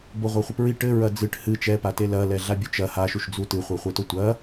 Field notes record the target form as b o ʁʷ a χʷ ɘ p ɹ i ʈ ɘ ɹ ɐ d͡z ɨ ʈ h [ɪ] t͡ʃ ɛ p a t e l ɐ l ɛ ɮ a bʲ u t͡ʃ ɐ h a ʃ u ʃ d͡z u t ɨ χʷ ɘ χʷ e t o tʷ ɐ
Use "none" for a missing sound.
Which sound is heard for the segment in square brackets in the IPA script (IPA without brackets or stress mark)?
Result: ɨ